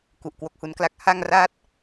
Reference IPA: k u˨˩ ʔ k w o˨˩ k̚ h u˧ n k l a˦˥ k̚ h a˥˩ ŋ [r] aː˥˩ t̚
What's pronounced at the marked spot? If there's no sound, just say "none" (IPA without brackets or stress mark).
r